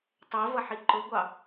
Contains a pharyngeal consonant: yes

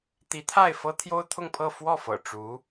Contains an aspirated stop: yes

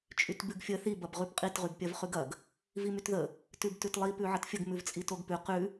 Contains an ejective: yes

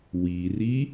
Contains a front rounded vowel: no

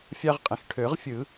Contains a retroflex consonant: yes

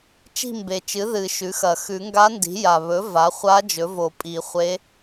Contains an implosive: no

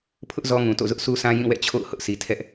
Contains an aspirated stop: yes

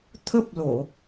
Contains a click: no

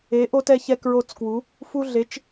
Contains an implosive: no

